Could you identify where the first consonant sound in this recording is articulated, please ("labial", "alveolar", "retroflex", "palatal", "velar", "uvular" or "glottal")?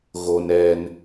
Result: velar